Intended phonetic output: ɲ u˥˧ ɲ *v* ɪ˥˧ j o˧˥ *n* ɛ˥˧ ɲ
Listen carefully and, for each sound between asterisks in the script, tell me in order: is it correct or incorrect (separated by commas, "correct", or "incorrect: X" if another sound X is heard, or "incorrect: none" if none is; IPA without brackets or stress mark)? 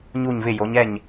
correct, incorrect: ɲ